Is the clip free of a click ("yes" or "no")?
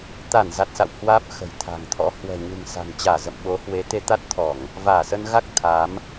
yes